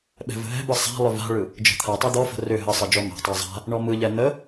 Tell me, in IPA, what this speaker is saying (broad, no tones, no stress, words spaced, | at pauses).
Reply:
ɓɛ̤və̤ɦɛ̤bɯ sˤa̤lˠʏ va̤ɭɯ | d͡ʒə̤t̪ʰatˤɛ d̪ɔfə̤ rʏ ɦəsˤə d͡ʒɔma̤tˤa zˤa̤ | ɳɔmɯʎɛ n̪ə